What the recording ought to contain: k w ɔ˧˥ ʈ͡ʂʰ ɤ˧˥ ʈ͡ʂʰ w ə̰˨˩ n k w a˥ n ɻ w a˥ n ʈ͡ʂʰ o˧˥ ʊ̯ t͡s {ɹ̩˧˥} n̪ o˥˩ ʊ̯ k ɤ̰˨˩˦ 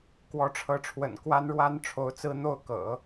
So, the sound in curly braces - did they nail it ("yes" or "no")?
no